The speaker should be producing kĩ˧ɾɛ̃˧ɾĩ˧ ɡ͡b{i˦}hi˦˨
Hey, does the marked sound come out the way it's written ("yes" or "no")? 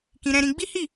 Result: yes